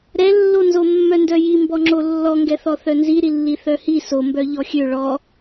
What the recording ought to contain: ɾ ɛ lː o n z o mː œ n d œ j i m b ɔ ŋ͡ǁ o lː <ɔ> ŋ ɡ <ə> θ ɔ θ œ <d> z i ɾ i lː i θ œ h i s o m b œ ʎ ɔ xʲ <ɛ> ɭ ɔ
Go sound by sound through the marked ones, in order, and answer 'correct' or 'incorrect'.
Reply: correct, incorrect: ɛ, incorrect: n, incorrect: ø

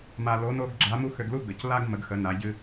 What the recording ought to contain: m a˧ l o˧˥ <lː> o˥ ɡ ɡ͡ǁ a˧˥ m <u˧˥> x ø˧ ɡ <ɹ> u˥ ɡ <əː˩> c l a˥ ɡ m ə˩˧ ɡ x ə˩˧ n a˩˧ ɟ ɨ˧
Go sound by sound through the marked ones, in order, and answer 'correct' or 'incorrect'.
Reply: incorrect: n, incorrect: u˥, incorrect: l, incorrect: ə˩

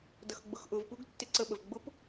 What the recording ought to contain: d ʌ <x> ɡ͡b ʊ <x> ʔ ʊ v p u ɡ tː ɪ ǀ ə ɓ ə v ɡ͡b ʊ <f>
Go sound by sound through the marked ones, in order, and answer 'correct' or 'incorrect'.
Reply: correct, correct, incorrect: p

